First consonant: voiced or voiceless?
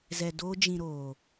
voiced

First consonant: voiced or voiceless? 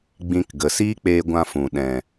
voiced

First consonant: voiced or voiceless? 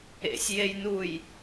voiceless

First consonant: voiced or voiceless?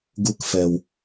voiced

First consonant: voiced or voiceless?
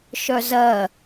voiceless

